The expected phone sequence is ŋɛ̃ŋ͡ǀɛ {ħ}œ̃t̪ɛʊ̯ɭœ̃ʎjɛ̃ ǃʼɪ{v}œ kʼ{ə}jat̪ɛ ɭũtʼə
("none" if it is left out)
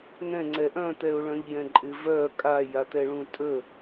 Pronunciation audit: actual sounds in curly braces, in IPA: ʔ, v, a

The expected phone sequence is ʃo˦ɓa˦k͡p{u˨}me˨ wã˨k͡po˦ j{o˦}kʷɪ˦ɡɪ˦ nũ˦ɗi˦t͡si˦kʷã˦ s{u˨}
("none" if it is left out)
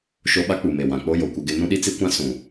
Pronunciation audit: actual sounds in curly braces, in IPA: u˨, o˨, ũ˨

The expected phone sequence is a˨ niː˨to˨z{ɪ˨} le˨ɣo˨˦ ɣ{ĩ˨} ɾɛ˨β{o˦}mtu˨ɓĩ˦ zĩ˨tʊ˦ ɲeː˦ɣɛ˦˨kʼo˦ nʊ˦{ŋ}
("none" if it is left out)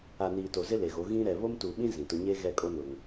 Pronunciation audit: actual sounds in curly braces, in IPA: ɪ˦, ĩ˦, o˦, ŋ

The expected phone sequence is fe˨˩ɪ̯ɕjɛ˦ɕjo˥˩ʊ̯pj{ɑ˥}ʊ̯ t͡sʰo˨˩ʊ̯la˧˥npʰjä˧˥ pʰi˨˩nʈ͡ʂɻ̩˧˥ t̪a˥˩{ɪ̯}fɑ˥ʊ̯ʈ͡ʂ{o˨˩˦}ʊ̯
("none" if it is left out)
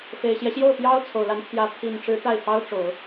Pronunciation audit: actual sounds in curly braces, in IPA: ɑ˥, ɪ̯, o˨˩˦

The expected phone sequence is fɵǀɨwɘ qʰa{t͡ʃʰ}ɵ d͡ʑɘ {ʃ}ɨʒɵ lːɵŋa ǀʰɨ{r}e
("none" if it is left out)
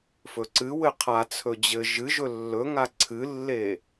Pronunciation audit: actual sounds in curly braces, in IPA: t͡sʰ, ʒ, lː

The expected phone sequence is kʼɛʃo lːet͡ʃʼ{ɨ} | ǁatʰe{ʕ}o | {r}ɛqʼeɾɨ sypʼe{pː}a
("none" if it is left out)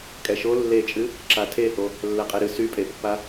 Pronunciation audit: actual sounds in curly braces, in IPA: ɨ, h, lː, pː

